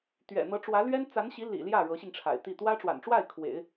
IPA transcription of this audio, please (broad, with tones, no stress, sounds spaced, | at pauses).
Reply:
t̪ ɥ ɛ̰˨˩ n̪ ɤ˧˥ ʈ͡ʂ w ä˧˥ l ɥ ɛ˥ n t͡s a˧˥ n ɕ i˧˥ l ḭ˨˩ l j ä˥˩ ɻ ɤ˧˥ ɕ i˧ ŋ ʈ͡ʂʰ a̰˨˩ ɪ̯ t̪ i˥˩ t̪ w ä˥ ʈ͡ʂ w a̰˨˩ n ʈ͡ʂ w a˥˩ ɪ̯ kʰ w ḛ˨˩˦ ɪ̯